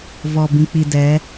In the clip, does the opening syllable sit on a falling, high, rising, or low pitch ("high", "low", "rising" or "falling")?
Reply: low